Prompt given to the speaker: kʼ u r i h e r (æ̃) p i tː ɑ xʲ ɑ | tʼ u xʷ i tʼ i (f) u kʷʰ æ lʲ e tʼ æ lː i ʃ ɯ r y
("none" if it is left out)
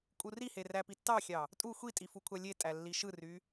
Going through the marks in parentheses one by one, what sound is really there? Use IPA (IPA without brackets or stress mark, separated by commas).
æ, f